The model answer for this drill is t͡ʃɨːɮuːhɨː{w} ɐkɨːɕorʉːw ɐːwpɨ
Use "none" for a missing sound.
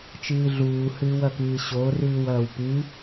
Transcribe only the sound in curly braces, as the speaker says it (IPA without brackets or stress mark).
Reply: w